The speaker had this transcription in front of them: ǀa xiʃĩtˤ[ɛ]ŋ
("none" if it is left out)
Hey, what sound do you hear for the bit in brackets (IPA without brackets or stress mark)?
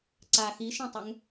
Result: ɛ